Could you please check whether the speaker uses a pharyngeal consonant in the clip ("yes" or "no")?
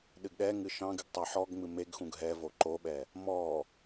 yes